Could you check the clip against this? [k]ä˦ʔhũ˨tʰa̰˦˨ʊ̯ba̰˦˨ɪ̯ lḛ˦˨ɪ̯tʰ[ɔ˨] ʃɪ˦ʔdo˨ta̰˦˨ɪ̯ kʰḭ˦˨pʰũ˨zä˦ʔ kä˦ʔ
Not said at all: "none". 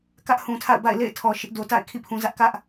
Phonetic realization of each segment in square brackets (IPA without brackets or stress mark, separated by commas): k, ɔ˨